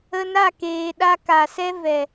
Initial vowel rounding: unrounded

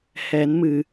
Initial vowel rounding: unrounded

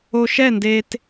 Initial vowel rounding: rounded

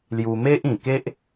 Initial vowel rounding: rounded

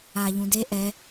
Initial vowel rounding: unrounded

